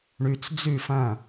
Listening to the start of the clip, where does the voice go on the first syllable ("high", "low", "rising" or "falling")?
low